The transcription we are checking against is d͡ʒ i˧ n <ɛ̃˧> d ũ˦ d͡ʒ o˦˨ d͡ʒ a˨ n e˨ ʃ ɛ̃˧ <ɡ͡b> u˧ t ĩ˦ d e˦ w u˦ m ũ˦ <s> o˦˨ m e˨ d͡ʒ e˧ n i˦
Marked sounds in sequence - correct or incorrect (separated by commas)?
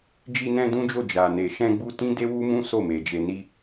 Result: correct, correct, correct